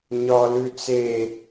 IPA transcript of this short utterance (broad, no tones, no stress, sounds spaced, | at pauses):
ɲ ɒ l ʉ t͡s e